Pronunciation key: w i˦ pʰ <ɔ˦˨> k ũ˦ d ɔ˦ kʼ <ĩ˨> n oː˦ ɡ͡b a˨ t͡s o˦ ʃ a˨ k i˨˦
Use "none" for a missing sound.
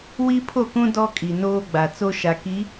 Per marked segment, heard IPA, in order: o˦˨, i˨

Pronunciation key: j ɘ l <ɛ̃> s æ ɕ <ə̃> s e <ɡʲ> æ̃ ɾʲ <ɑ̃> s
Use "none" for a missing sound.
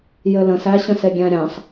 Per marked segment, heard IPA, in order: ə̃, ə̃, ɡʲ, ɑ̃

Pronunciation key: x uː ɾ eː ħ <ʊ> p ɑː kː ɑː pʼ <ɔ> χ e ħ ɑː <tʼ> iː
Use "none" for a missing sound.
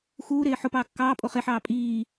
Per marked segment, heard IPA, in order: ʊ, o, pʼ

